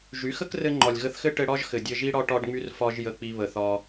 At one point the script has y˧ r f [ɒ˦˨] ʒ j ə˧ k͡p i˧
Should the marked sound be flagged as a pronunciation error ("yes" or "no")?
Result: yes